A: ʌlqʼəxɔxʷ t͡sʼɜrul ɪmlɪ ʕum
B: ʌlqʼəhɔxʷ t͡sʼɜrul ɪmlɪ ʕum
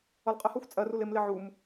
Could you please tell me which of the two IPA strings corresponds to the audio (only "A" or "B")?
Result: B